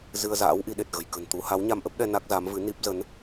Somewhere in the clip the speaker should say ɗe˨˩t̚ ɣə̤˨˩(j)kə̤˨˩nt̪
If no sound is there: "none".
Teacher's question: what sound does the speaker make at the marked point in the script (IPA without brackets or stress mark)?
j